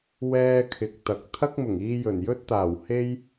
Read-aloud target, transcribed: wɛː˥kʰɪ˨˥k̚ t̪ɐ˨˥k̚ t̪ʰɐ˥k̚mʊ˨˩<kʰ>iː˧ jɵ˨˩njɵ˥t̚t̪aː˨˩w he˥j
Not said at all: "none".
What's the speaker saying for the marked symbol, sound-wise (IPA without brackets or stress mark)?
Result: ŋ